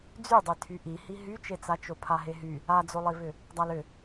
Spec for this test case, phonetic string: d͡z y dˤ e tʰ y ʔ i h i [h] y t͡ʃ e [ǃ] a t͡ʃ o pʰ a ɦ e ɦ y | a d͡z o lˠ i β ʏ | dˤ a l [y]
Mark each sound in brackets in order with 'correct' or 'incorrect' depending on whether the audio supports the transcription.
incorrect: ɦ, incorrect: t͡s, incorrect: ʏ

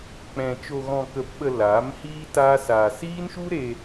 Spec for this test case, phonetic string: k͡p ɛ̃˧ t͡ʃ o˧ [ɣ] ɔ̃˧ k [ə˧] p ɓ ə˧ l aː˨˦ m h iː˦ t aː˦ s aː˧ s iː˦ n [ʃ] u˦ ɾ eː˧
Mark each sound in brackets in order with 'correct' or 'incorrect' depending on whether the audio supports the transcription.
correct, correct, correct

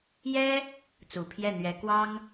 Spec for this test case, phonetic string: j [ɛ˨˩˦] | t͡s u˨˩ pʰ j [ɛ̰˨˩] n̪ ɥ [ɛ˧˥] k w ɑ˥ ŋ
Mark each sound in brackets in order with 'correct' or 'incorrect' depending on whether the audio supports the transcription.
incorrect: ɛ˥, incorrect: ɛ˥˩, correct

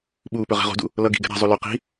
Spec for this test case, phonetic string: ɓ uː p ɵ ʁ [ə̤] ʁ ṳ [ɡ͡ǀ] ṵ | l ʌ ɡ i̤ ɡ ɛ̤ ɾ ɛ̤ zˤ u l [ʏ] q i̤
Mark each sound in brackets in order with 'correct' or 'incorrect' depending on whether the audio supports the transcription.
incorrect: ɛ̤, incorrect: d, correct

